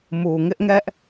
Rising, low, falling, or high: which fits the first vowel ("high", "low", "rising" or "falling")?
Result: low